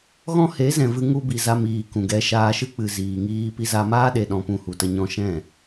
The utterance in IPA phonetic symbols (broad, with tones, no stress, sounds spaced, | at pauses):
ɣ ɔ̃˦ h e˨˦ z ɛ̃˨ v ɨ˧ ŋ u˧ b i˨ z a˧ m iː˨ k ũ˨ ɡ ɛ˧ ʃ aː˧ ʃ ɨ˦ k͡p ɨ˨ z iː˨ ŋ iː˧ p i˧ z a˧ m aː˦ ɗ e˨ ɗ ɔ̃˨ p ũ˧ h u˨ t ə˧ ɲ ɔ̃˧ ʃ ɛ̃˦˨